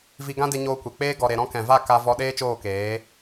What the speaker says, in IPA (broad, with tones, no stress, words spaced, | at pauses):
vi˧ɡã˦de˧ ɲoː˧kʷe˨k͡peː˦ ɡɔ˨ɾe˨ ɾɔ̃˧kɛ̃˨va˦˨ ka˧ vɔ˧ɗeː˦t͡ʃoː˦˨keː˨˦